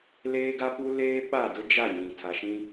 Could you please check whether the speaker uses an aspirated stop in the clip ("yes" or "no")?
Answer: yes